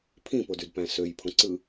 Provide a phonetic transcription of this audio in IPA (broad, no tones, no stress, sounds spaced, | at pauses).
pʰ ĩ p o d y d p æ̃ s ø j pʰ õ ǀ ɯ